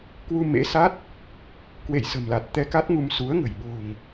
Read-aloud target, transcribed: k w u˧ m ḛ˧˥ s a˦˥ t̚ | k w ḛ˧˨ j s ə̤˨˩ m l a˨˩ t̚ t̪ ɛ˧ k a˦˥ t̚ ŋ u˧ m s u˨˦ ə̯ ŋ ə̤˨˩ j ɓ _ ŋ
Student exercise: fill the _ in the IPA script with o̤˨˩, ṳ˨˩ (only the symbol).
o̤˨˩